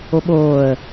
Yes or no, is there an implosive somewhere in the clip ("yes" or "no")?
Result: yes